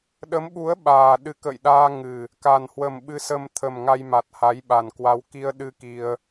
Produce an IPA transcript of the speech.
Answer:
ɗ ə˨˦ m ɓ u˨˦ ə̯ ɓ aː˨˩ ɗ ɨ˨˦ k ə̰˧˨ j ɗ aː˧ ŋ ɨ˨˩ | k a˨˩ n h w ə˨˩ m ɓ ɨ˧ s ə˧ m t̪ʰ ə˨˩ m ŋ a˧ j m a˨˩ t̚ h a˨˦ j ɓ a˨˩ n k w a˧ w k i˧ ə̯ ɗ ɨ˧ k i˧ ə̯

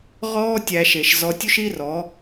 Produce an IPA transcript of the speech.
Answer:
ʁ ɔː˦ tʲ æ˧ ʃ e˨ ʃ z ɔ˧ tʲ u˦ ʃ i˦ r ɔ˨˦

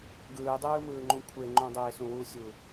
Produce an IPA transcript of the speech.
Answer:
ɡ ɯː dˤ ɯː m ɯː ŋ͡ǃ ũ kʷʰ e ŋ͡ǃ õ dˤ eː s ũ w u sʲ u

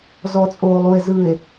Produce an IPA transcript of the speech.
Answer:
z ɔ˨ t͡sʼ oː˨ lˠ u˨ e̯ z ɯː˨ e̯

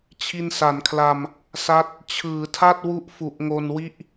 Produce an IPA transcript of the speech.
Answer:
t͡ɕʰ i˧ n s a˩˦ n kʰ l a˧ m | s a˦˥ t̚ | t͡ɕʰ ɯː˩˦ tʰ a˥˩ t̚ w u˦˥ ʔ f u˨˩ ʔ ŋ o˧ n w i˥˩ ʔ

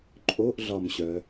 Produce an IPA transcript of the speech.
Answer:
ǃʼ o ʔ ɮ ɒ m ɕ œ

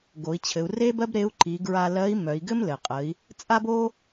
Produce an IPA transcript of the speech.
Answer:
ɡ o˩˧ i̯ t͡ɕʰ ɘ˩˧ u̯ r e˥ b ɜ˥ b ɾ e˧˥ u̯ ǃ i˩˧ ɡ ɹ a˧ l ɜ˧˥ i̯ m œ˩˧ i̯ ɡ ɘ˥ m l ɘ˩ qʼ ə˩˧ i̯ | t͡sʼ a˥ b o˥

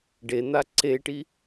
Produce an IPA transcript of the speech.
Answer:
ɖ e n̪ a ǀ e ʈ i

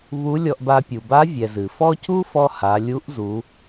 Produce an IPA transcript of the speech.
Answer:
β u˧˥ lʲ ɔ˧ ʔ b a˧ pʲ u˩ b a˧˥ vʲ ɛ˩ z ɨ˩ f ɔ˥ c u˥ f ɔ˧ h a˩˧ lʲ u˧˥ ʔ z u˩˧

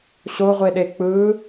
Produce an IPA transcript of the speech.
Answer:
ɕ o ʁʷ e ɗ e k͡p ɯ

